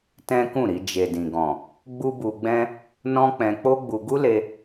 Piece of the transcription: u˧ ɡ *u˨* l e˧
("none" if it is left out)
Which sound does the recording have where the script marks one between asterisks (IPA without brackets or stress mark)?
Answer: u˦